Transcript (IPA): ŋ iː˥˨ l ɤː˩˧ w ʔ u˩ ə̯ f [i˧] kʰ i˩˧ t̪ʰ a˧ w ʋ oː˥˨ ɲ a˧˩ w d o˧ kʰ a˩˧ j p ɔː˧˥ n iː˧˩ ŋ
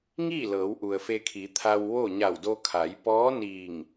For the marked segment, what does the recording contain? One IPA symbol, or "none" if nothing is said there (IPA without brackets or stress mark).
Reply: e˧